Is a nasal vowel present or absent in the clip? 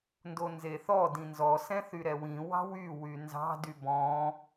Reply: present